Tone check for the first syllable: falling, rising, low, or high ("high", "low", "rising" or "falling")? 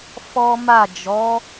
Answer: high